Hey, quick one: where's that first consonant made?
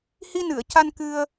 throat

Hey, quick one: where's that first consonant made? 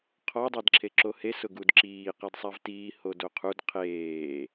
uvula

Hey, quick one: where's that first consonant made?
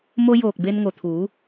lips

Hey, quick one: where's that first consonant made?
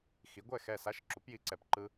velum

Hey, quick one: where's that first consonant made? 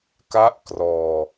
velum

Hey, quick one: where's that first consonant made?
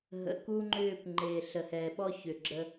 throat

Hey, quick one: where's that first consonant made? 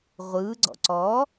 uvula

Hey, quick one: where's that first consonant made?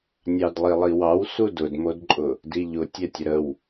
tongue tip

